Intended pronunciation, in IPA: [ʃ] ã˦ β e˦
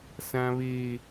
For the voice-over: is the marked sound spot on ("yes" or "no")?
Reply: no